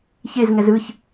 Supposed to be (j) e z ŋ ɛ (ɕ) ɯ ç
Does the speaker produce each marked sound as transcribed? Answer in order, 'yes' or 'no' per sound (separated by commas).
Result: no, no